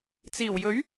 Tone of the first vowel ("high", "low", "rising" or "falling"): low